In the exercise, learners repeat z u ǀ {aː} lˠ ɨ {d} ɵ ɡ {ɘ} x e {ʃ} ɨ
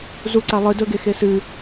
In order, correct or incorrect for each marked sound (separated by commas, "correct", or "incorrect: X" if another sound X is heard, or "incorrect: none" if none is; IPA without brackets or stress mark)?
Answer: incorrect: a, correct, incorrect: e, incorrect: s